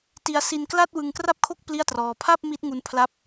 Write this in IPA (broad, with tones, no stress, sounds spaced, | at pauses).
t i˧ a̯ s i˧ n k l a˥˩ t̚ w ɯ˧ ŋ k r a˥˩ p̚ kʰ o˥˩ k̚ p l i˥˩ a̯ t r ɔː˧ pʰ a˥˩ p̚ m i˦˥ t̚ ŋ u˧ n pʰ l a˦˥ p̚